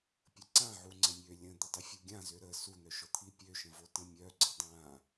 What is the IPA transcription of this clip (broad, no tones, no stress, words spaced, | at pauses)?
pʲəǀãʕu ŋ͡ǀə̃mʲø lʲə̃d̪ə dˤifʲuɡʲãzø ɾə sun̪œʃɔ t̪ʰipʲøʃə̃vo tə̃mʲœ ɡ͡ǀədˤã